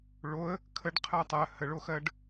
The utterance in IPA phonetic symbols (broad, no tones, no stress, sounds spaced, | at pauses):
ɭ o ə̯ | kʰ ə ɖ qʰ ɜ tˤ ɜ h ə ɭ o x ɜ ɖ